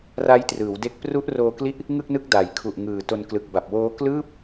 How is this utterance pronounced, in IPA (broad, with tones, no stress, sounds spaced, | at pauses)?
r a˦˥ j t r ɯː˩˦ w d e˦˥ k̚ p r u˦˥ ʔ r oː˧ k l i˦˥ ʔ | ŋ ɯ˥˩ k̚ n ɯ˦˥ k̚ d a˨˩ j kʰ u˨˩ ʔ ŋ ɯː˨˩ t o˧ n k l ɯ˨˩ k̚ b a˨˩ p̚ w oː˦˥ k l ɯː˥˩ p̚